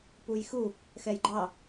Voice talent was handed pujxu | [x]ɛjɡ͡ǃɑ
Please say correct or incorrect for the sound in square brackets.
correct